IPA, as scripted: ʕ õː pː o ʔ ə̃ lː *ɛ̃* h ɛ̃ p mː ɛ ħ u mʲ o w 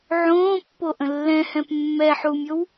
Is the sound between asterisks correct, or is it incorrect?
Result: correct